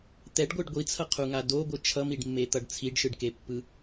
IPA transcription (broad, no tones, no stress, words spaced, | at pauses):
t̪ɛɖɡʷɯɖ ɡʷit͡sʰʌqʰuŋa doɡʷɯ t͡ʃʰʌmiɖmːet̪ʌɖ t͡sʰiɖʃɯɖkepːɯ